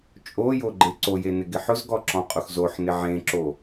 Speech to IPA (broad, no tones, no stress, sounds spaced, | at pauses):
t͡ʃʼ o j o ɡ͡ǃ e ǀ o j e n ɪ ɡ ɪ ħ ʊ z ɡ ɔ ǁ ɔ̃ qʼ ʊ x z o ħ n ɪ ʕ ẽ ǁ o